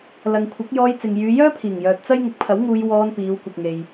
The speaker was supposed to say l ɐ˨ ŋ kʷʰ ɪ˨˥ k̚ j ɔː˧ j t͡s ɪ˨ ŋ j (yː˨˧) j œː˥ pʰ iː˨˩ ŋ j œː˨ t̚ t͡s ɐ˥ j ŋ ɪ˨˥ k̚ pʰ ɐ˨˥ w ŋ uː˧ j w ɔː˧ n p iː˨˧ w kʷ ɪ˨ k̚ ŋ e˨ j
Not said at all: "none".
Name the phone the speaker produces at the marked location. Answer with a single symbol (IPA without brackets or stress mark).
yː˨˧